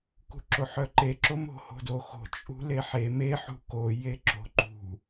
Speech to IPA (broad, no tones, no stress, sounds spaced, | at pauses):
k ṳ ǁ o ħ œ ǃ e ǁ o m o̤ h o̤ d o x o̤ t͡ʃʼ ṳ l e ħ e m e ħ ṳ k o j e ǁ o̤ ǃ ṳ